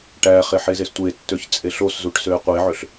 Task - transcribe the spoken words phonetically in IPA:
ʈ æ χ e ħ e z e s tʷ e tː ø ç t͡sʼ e ɬ o s z u ʈ s ø e̯ qʷ e ʕ ø ɬ

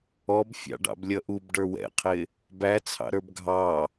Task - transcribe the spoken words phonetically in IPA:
ɔ b fʲ ɑ̰ ɖ ɑ̰ b lʲ ʌ ʔ u b ɖ ə˞ w ɛ̰ qʰ ɪ | b æ t͡sʰ ɑ̰ ɾ ə˞ b ɡʱ ɑ

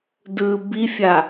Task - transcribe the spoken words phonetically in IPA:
d ɯː b i fʲ a

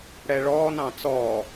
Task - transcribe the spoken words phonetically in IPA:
ɽ ɛ ɭ ɔː n ɑ̃ t͡s ɔː

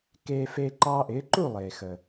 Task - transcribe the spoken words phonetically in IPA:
k eː˧ f eː˧ ǃ ɑː˧ ʔ ɪː˩˥ ǃ u˥˩ lˠ eː˩ x əː˩

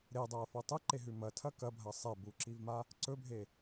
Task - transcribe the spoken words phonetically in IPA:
ɾ e dˤ a ɐ̯ f o tˤ ɨ ǃ e ɦ ʉ m ɐ tʰ ɐ k ɐ bʱ ɐ sˤ e b u ǁ i v m a | ǀ ɵ bʱ e

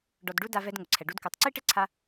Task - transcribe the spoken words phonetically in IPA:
ɖ ɔ˨ d ɖ u˧ d a˧ v ɛ˧ d ŋ ʊ˨ ǀʰ ɛ˨ ɖ u˦ d k u˨˦ tˤ ǀ i˦ ʈ ɪ˦ ǀʰ a˦

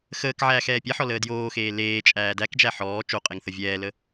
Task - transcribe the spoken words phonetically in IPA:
x əː k ʕ æː x ɛː pʲ ɛ ħ ɔ l əː d j oː x eː l eː t͡ʃʼ æː d æ k d͡ʒ æ ħ ɔː t͡ʃ o qʼ e ŋ θ ə vʲ ɛː l ə

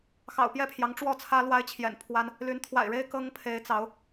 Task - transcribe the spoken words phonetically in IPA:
x ɑ̰˨˩ ʊ̯ p j ɛ˥˨ pʰ j ɑ˨˦ ŋ ʈ͡ʂ w ɔ˥˨ t͡sʰ ä˦ l w a˦ ɪ̯ t͡ɕʰ j ɛ̰˨˩ n pʰ w a˦ n | l y˨˦ n t̪ʰ w a̰˨˩ ɪ̯ ɻ e˦ ɪ̯ k ɤ˦ ŋ pʰ e˨˦ ɪ̯ t͡s ɑ˨˦ ʊ̯

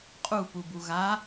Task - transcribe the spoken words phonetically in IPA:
qʼ u p u b u ɣ a

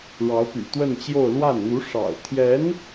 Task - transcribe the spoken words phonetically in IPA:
ɻ ɑ˧˥ ʊ̯ p y̰˨˩ t̪ w ə˥˧ n t͡ɕ j o˥˧ ʊ̯ l w a˥˩ n n̪ u˧˥ ʂ ɑ̰˨˩ ʊ̯ t̪ʰ j ɛ˧˥ n

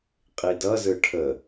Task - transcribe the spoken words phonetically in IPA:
qʼ i d ʌ z ɯ ʈʰ ə

